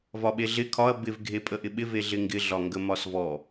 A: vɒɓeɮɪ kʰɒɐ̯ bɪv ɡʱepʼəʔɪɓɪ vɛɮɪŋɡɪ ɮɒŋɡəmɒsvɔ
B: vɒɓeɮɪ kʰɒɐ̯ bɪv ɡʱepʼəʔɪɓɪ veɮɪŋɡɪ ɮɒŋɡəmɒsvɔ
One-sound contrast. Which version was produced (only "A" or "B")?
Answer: B